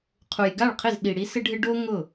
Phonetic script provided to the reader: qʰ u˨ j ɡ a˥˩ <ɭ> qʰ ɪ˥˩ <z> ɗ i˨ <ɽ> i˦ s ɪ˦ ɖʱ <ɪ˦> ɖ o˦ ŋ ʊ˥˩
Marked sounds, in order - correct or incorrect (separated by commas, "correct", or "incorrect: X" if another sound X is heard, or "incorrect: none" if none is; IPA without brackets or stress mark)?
correct, correct, correct, correct